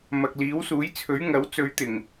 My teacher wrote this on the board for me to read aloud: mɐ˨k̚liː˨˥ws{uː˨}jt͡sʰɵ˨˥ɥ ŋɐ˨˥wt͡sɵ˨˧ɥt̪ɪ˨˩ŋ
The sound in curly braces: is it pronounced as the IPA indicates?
no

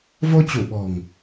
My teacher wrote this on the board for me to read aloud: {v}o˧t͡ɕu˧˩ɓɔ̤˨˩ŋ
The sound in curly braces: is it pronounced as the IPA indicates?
yes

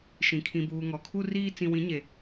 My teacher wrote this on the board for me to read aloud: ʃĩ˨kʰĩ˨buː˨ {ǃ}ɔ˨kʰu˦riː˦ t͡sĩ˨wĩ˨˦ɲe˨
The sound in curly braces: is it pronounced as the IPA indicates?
no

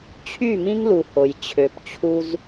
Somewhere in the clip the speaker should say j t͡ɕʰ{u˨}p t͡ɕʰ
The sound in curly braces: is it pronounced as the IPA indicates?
no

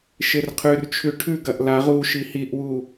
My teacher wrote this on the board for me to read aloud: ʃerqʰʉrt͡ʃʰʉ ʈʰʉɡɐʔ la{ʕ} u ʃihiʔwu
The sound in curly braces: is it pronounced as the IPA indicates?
no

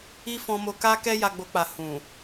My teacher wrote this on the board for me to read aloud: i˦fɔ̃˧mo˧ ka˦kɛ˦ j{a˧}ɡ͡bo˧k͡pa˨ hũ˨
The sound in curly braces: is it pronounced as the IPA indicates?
yes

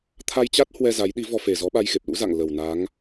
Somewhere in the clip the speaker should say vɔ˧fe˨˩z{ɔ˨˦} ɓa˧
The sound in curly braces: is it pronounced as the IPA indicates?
yes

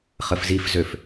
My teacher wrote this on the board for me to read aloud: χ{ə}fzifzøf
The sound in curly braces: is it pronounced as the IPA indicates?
yes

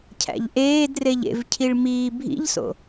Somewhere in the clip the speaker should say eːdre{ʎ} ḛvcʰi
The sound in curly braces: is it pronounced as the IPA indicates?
yes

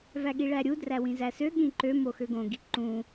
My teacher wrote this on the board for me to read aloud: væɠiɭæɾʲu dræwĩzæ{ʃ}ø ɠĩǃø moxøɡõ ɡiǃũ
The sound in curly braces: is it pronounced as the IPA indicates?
no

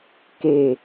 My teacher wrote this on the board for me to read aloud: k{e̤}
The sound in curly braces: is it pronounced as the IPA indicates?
no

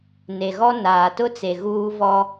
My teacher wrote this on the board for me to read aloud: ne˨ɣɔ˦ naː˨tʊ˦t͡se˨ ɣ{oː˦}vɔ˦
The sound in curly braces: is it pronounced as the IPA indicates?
no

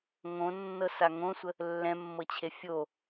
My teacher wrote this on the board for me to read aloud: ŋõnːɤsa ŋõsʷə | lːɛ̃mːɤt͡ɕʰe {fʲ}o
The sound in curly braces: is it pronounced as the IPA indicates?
yes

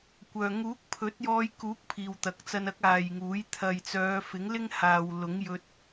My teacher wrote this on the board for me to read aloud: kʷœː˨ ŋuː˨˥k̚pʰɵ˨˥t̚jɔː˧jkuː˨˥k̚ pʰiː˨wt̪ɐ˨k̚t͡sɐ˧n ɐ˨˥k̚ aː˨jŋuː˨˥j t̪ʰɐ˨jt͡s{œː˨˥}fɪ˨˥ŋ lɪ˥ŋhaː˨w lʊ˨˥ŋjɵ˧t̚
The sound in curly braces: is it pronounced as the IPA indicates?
no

